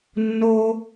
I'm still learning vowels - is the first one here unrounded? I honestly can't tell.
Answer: no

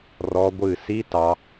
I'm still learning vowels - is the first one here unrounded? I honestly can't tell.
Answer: no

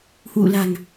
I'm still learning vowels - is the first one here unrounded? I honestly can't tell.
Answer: no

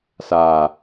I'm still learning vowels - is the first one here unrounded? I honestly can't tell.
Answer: yes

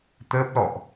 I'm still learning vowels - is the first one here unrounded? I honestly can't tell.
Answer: yes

